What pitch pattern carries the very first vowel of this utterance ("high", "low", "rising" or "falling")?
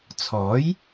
rising